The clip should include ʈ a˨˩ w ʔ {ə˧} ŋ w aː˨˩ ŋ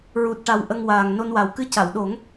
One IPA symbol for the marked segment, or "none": ə˧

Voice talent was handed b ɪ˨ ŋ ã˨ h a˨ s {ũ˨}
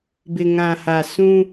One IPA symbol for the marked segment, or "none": ũ˦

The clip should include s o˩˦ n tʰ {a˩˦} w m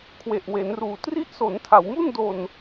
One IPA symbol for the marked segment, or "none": a˩˦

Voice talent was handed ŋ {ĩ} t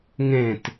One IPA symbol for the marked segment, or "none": ẽ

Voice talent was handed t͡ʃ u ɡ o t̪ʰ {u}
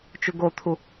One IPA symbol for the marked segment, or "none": u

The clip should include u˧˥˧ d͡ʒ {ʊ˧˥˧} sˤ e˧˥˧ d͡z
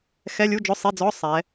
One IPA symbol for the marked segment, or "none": ʊ˧˥˧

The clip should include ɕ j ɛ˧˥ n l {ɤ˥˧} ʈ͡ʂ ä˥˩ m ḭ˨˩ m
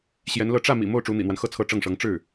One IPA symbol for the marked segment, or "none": ɤ˥˧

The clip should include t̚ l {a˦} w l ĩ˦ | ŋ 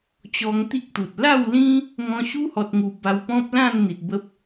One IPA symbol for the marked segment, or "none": a˥˧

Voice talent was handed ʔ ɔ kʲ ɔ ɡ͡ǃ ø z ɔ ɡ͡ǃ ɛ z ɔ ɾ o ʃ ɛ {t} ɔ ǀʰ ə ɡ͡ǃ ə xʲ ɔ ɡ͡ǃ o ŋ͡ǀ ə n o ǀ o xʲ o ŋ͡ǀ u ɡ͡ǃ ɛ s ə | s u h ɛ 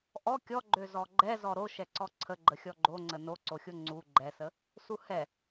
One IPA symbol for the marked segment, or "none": ǀ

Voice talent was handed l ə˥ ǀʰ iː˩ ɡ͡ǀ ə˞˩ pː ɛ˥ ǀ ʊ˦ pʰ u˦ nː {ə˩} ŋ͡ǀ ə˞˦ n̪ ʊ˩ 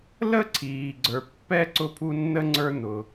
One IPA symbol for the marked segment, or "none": ə˥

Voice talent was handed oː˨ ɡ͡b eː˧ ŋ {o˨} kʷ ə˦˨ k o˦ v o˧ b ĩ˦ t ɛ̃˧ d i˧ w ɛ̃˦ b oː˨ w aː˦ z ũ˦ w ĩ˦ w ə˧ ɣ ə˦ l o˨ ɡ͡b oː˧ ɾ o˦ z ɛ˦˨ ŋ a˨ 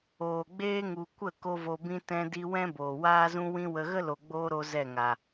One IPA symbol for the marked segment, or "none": u˨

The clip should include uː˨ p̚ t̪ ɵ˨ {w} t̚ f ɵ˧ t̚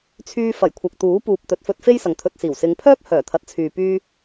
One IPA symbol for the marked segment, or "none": none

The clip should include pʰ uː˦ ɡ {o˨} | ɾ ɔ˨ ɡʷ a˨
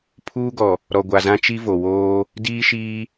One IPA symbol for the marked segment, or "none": ɔ˨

